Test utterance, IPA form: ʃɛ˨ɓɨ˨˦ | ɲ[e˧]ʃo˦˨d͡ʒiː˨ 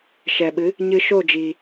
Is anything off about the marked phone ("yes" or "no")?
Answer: yes